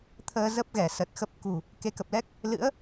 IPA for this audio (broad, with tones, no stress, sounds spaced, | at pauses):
t̪ʰ əː˧ z ə˦˥ p̚ ɣ ɛ˧˩ s ə˨˩ t̚ x ə˦˥ p̚ k ṳ˨˩ | k e˨˦ k ə˨˩ p̚ l ɛ˦˥ k̚ | l ɨ̰˧˥ ə̯